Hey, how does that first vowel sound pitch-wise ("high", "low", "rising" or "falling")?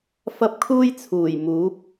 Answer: high